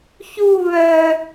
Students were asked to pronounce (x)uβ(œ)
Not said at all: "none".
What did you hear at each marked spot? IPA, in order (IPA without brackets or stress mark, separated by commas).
ç, œ